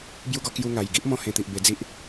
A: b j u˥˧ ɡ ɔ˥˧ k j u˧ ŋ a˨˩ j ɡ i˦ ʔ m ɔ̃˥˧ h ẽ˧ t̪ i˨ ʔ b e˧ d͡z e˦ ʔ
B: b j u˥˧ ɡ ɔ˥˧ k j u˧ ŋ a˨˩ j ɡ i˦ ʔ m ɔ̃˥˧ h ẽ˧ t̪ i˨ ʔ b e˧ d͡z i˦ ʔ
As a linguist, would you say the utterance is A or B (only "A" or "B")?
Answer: B